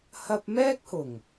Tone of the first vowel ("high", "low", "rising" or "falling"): high